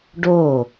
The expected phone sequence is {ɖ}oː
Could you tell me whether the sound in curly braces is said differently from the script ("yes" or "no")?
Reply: no